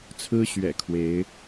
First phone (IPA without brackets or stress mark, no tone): t͡sʰ